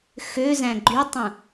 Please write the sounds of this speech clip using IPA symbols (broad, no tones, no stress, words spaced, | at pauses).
xø zæ̃ɡ͡ǃytˤũ